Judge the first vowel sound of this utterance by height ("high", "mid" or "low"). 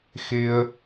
high